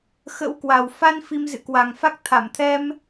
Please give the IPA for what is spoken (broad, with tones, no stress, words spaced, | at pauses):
xə̰˧˥wkwa˨˩w fa˧n fi˧mzɨ̰˧˨kwa˨˩ŋfa˦˥k̚ t̪ʰa˧˩mt̪ʰɛ˧m